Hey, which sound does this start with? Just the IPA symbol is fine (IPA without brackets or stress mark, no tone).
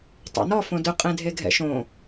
tˤ